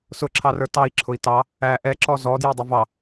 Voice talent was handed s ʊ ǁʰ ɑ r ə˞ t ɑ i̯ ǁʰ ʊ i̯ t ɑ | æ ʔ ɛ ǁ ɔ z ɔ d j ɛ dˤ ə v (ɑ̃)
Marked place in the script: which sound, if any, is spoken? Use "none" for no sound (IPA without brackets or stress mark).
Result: ɑ